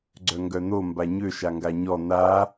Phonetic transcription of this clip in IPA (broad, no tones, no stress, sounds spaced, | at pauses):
ɡ͡ǀ œ ŋ ɡ œ n̪ o m b a ɲ ø ʃ a ŋ ɡ a ɲ ɔ n̪ a